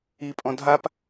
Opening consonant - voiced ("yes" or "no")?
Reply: no